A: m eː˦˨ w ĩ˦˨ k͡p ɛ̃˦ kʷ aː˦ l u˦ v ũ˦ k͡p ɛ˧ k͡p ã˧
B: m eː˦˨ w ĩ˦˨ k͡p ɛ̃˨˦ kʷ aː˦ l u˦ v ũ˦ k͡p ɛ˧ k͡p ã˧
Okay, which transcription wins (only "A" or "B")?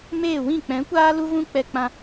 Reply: B